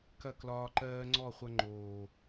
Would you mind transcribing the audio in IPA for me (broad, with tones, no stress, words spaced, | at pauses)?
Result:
kɐ˦˨klɒː˧ ǃɜː˧ŋ͡ǀɔ˦˨ χʷɐ˦ŋ͡ǃoː˨